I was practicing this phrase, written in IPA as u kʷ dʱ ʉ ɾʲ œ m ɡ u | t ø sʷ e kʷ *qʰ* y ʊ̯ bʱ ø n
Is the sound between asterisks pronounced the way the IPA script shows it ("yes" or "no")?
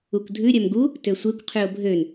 yes